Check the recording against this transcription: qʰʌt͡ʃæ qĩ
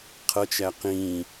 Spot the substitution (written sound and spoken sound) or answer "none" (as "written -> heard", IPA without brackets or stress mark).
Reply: none